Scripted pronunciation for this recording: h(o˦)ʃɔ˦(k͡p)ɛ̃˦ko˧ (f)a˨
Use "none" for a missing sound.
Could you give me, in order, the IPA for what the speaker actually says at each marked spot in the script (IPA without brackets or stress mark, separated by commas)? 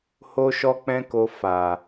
o˦, k͡p, f